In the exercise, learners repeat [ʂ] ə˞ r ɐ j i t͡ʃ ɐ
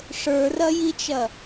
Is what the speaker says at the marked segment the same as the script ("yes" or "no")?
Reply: yes